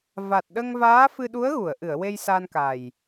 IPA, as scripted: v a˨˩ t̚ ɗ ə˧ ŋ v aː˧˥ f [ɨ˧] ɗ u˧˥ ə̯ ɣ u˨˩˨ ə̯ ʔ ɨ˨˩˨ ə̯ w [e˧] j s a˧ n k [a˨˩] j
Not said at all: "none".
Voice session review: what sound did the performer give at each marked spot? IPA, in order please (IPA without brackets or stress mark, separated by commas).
ɨ˧, e˧, a˨˩